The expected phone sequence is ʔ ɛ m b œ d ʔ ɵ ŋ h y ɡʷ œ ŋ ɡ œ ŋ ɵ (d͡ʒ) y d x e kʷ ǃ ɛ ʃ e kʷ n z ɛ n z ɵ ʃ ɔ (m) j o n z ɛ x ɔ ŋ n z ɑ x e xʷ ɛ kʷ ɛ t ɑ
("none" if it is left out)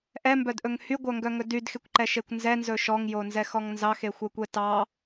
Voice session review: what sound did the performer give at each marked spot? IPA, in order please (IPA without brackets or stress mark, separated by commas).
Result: d, ŋ